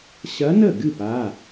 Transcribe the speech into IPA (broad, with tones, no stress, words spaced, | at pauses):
ɕɐ˧˥nə˥˩ɡɨ˥˩p a˩˧˩